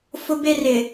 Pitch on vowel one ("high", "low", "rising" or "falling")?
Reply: high